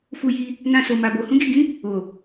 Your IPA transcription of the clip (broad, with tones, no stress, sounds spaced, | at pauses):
f u˧ j i˧ | n ã˧ s o˨ m a˨ b o˨ h ũ˨˦ ɡ i˦˨ ɡ ĩ˨˦ | o˨